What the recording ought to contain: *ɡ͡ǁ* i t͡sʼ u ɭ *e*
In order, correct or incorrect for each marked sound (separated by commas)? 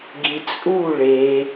incorrect, correct